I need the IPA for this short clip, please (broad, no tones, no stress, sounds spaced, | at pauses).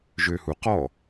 ʒ ø h u q ɔ